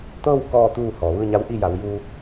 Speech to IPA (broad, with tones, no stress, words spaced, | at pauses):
t̪ɤː˥˨w kɔː˥˨t̪uː˥˨ hɔː˩ʋɯː˥˨ɲa˧˥w ʔi˥˨ja˩˧w juː˧